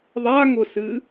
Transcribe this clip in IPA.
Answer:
ðˤ a ŋ ʊ s ɨ

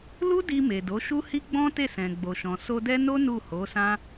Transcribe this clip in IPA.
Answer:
l u˦ d i˧ m e˨ d o˨˦ ʃ u˦ h i˦ ɡ͡b ɔ̃˦ t e˦˨ s ɛ̃˨ ɡ͡b o˨ ʃ ɔ̃˨ s o˧ d ɛ˦ n o˦ n u˦˨ h o˨˦ s ã˦

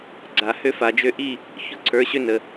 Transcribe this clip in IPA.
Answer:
ɡ͡ǀ a˨ h ø˦ f a˨ d͡ʒ ø˧ ʔ i˦˨ | ç ʊ˦ ǀʰ ə˞˨˦ ɕ ø˦ n ə˨

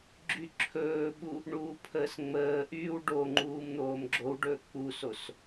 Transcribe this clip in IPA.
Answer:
ɡ͡ǁ y ǁʰ ɵː ɓ u | ɳ uː pʰ əː s ŋ͡m əː ʔ yː w ɖ o ŋ͡ǃ uː m n̪ oː m ɡ͡ǁ o w ɖ ɵː k͡p u s o s

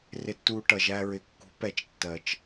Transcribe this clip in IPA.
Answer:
r ɪ˨ tː uː˨ ʈ ʌ˨ ʒ æ˦ ɹ ɪ˨ kː ṳ˨˦ p ɛ˨ t͡ʃ tː ɜ˨ t͡ʃ

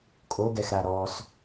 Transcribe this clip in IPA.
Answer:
kʼ o ɡ ɛ x ɾ a ɾ ɔ s

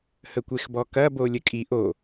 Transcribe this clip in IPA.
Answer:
h ə kʷ e x b ɔ k ɐ b o lʲ ə kʼ i ʔ o

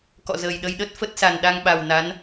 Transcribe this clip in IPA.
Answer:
k ɔ̰˧˨ z əː˨˩ j ɗ ə˧ j ɗ ə˦˥ t̚ f ə˦˥ t̚ s a˨˩ n ɗ a˧ ŋ ɓ a˨˩ w n a˨˦ n

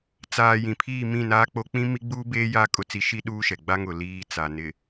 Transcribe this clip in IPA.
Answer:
t͡s aː˨ j ĩ˨ pʰ iː˦˨ m ĩ˦˨ n aː˦ k͡p o˦ k͡p ĩ˦ m i˦ ɡ͡b uː˦ b eː˦ j a˦ kʼ ʊ˦ t͡s i˦ ʃ i˦ ɗ uː˦ ʃ ɛ˨ ɡ͡b a˦ ŋ ʊ˨ l iː˦ t͡s a˨ n ɪ˨

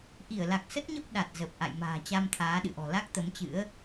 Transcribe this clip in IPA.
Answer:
ʔ i˧˩ ə̯ l a˨˩ k̚ s ə˦˥ t̚ ɲ ə˦˥ p̚ ɗ a˨˩ t̚ z ə˨˩ p̚ ʔ a̰˧˨ j m a̤ː˨˩ t͡ɕ a˧ m t̪ʰ aː˨˦ ɗ ɨ̰˧˨ ʔ ɔ̤˨˩ l a˦˥ k̚ t̪ ə˨˦ m t͡ɕ ɨ̰˧˥ ə̯

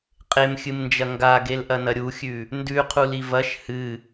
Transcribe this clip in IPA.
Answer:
qʼ e m xʲ ɨ m n d͡ʒ ɐ ŋ ɡ a ɡ e l ʔ ɐ n ɐ ɾʲ u xʲ ʉ | n d ʉ qʰ u l i v ɐ ʃ h ɨ

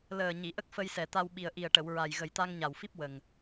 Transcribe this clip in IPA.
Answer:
l əː˨˩ ɲ i˨˩˨ ʔ ə˦˥ k̚ f ə˧ j s ɛ˨˩ t̪ a˧ w ɓ i˨˩ ə̯ ʔ i˨˩ ə̯ ʈ ə˨˩˨ w ɹ a˨˩ j ɣ ə˨˩ j t̪ a˧ ŋ ɲ a˨˩ w f i˦˥ p̚ w ə˨˩ ŋ

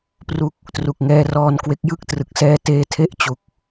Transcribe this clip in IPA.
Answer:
p r u˦˥ k̚ | t r u˨˩ k̚ ŋ ɛː˧ r ɔː˧ n k w e˦˥ k̚ j ɯ˥˩ k̚ t r ɯ˨˩ k̚ s ɛː˧ t eː˧ tʰ e˦˥ ʔ t͡ɕ u˨˩ k̚

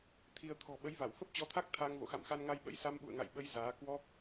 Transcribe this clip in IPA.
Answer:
t̪ʰ i˧ ə̯ t̪ʰ ɔ̤˨˩ ɓ ə˨˦ j v a˧˩ w f ə˦˥ p̚ t͡ɕ ɔ˨˦ t̪ʰ a˦˥ k̚ t̪ʰ aː˧ ŋ v o̰˧˨ x a̰˧˨ m x a˧ n ŋ a˧ j ɓ ə̰˧˥ j s a˧ m ɓ ṵ˧˨ ə̯ ŋ a̰˧˨ j ɓ ə˨˦ j z aː˨˦ k w ɔ˦˥ k̚

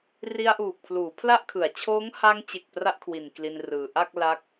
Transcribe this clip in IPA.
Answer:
r i˧ a̯ ʔ uː˨˩ k̚ pʰ l uː˩˦ pʰ l a˥˩ ʔ kʰ ɯ˩˦ a̯ t͡ɕʰ oː˦˥ ŋ h a˧ ŋ t͡ɕ e˨˩ k̚ p r a˥˩ ʔ kʰ w i˨˩ n k l i˧ n r ɯː˨˩ ʔ a˥˩ k̚ l a˦˥ k̚

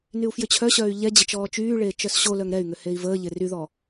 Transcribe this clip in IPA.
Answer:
n y u̯ f j ʏ t͡ɕʰ œ ɕ œː y̯ ʎ ɛ d͡ʑ ɪ t͡ʃ ɔː t͡ʃ yː ɭ eː t͡ʃ œ s ɕ o l œ ŋ ɾ ɛ y̯ ŋ ʏ h e i̯ v əː ʎ ɪ r y ð ɔ

